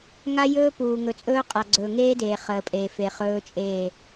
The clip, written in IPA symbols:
ŋa˦jɵː˦puː˨ ŋɵ˨t͡sʼɵː˦qʼa˨ɡ͡ǀɵː˨ ŋeː˦deː˨ χəː˨pʼeː˨fe˨ χɵː˦t͡ʃʼeː˦˨

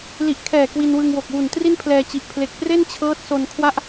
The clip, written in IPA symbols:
li˨˩ʔkʰɛː˨˩ kwi˧nwɯ˧ŋwo˨˩k̚ wu˨˩ntri˥˩npʰlɛː˧t͡ɕi˨˩ʔ pʰle˨˩k̚pre˥˩nt͡ɕʰɤː˦˥t̚ so˧nkʰwa˥˩ʔ

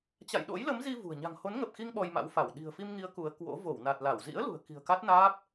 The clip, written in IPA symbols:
t͡ɕa̰˧˨jɗo̰˧˥jlə˨˦mzi˧ vṳ˨˩ə̯ ɲa̤˨˩ŋho˨˦nŋə˨˩p̚xi˧ŋ ɓɔ˧jma̰˧˥wfa˧˩w ɗi̤˨˩ə̯fi˧mŋi˨˦ə̯ ku˨˦ə̯kwo̰˧˥ vo˧˩wna˨˩t̚la˧˩w zḭ˧˥ə̯lṳ˨˩ə̯ ki̤˨˩ə̯ka˦˥t̚naː˦˥p̚

